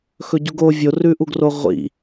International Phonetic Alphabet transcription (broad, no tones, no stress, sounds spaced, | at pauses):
x ɵ ɟ u ɡ o vʲ o r ʉ ʔ u ɡ r o ʁʷ ḭ